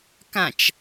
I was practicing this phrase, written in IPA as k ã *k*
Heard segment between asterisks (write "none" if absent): t͡ʃ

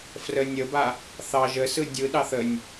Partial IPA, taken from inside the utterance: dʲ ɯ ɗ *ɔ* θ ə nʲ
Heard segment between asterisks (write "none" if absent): ɑ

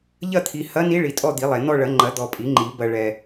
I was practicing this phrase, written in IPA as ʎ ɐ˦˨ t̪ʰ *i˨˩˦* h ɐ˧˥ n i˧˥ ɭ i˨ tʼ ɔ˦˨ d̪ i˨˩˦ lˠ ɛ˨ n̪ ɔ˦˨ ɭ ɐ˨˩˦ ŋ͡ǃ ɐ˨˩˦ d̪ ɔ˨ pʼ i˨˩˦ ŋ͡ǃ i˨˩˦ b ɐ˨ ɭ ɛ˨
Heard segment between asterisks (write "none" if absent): i˨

